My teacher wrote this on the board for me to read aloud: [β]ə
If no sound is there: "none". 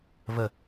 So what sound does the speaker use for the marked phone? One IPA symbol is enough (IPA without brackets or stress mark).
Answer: β